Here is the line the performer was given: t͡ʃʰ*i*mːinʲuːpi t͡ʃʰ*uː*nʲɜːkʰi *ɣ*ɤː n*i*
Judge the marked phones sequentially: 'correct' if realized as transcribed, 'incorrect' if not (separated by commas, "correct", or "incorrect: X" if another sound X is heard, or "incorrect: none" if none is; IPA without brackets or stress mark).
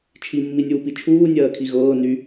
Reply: correct, correct, correct, incorrect: y